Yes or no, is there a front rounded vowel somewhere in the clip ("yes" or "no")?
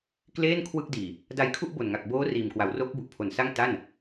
no